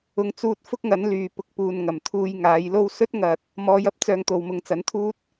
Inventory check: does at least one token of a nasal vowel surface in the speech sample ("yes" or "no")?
no